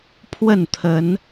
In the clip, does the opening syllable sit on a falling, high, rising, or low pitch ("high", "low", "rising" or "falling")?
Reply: falling